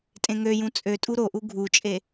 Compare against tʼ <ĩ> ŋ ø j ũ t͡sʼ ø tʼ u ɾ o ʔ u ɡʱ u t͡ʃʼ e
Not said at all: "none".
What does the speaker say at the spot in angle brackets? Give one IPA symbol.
ẽ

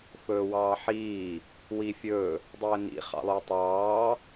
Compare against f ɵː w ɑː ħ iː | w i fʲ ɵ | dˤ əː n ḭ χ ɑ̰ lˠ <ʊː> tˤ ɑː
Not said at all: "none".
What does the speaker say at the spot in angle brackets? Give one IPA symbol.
ɵː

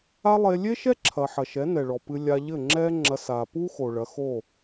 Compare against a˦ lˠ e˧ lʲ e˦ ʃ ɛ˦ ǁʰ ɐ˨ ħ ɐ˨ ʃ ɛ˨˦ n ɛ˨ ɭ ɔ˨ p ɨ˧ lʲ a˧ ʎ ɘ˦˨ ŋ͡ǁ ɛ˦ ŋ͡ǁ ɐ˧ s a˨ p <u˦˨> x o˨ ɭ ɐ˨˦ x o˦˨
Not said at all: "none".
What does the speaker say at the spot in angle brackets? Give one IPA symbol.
u˦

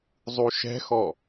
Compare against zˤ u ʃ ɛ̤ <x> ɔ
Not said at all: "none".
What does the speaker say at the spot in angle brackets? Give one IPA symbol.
x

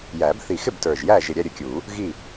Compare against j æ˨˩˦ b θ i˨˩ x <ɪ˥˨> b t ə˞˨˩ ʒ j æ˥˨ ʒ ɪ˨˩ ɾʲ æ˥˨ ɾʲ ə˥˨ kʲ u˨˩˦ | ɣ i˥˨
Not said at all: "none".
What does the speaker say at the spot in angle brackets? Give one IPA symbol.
ɪ˥˨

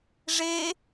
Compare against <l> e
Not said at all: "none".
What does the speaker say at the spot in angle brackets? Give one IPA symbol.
ʐ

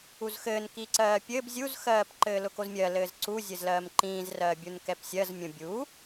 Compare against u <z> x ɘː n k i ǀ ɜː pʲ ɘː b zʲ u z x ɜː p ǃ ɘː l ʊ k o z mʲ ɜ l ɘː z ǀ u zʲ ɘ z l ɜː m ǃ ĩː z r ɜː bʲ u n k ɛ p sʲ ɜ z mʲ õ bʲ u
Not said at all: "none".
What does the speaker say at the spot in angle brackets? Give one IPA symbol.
z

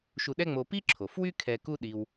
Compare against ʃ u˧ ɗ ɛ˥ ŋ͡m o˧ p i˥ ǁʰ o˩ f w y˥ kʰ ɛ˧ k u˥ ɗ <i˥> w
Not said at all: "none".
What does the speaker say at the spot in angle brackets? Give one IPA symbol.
i˧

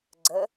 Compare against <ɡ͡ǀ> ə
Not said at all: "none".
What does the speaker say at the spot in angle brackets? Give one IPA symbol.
ɡ͡ǀ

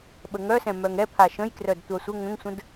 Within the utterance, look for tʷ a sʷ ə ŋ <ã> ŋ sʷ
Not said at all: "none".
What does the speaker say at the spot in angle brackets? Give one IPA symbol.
ə̃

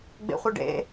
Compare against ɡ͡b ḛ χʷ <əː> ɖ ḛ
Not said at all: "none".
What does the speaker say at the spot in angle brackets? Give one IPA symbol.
ə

